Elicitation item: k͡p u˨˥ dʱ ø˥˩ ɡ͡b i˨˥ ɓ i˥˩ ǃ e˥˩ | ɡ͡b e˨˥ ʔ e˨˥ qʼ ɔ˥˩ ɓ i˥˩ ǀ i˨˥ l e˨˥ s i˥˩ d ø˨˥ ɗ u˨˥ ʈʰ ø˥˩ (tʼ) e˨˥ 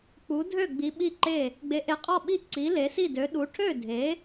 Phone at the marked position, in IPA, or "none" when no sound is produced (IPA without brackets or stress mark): dʱ